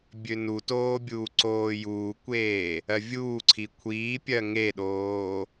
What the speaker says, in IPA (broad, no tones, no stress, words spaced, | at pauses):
bʲønutoː bʲuːǀoːjuːkʷeː | ɜvʲuːǀʰi kʷʰiːpʲɜ ŋeɗoː